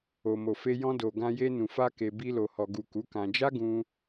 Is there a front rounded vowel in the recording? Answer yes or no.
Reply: no